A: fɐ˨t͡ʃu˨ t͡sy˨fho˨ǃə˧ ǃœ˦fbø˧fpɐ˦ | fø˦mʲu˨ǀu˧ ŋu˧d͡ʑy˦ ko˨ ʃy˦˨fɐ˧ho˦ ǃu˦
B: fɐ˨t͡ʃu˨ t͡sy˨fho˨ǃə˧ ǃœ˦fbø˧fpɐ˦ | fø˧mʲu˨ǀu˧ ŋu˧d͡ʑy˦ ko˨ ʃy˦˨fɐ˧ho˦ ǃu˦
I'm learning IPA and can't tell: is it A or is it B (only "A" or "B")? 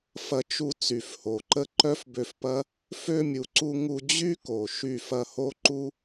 B